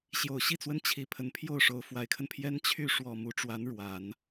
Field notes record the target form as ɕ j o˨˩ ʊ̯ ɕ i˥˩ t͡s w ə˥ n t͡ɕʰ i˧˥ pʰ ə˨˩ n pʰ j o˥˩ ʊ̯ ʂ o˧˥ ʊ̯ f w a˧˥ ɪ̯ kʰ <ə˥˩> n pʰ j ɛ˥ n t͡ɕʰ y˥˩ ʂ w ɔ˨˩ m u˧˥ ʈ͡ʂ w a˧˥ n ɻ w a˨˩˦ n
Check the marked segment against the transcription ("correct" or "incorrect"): incorrect